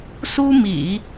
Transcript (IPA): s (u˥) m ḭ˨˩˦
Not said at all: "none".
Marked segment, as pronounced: u˥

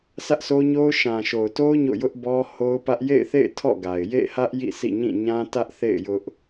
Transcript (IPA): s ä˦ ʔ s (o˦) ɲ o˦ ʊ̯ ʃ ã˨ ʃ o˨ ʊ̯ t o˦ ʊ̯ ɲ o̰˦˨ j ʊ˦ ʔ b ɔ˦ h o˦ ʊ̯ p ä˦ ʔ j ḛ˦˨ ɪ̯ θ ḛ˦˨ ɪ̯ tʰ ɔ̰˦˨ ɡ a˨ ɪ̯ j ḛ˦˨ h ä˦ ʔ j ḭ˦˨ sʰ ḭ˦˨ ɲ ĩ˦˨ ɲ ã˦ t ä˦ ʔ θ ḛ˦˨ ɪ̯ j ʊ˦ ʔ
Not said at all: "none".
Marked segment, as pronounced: o˦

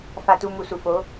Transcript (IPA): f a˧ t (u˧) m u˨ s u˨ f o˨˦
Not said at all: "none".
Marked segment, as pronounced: u˧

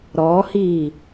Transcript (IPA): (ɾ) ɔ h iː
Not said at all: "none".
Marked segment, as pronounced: ɾ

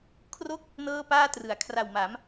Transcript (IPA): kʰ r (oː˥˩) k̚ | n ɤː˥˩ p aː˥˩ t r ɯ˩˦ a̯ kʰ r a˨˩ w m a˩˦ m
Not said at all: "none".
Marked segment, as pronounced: o˥˩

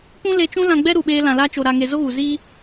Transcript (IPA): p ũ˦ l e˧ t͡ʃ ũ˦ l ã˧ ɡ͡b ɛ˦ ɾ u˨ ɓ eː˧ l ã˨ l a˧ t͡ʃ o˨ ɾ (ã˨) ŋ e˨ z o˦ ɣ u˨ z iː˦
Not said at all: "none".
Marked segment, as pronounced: a˨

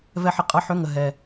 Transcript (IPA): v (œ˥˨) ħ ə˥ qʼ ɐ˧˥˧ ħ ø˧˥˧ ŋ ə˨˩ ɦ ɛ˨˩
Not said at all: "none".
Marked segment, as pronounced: ɛ˥˨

